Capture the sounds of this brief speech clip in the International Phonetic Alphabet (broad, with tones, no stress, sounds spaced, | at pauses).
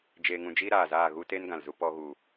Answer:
d͡ʒ eː˧ ŋ ũ˧ d͡ʒ iː˦ ɾ aː˨ z aː˦˨ ɣ u˦ t e˦ n ɡ ã˨ l z u˧ p ɔ˧ ɣ u˨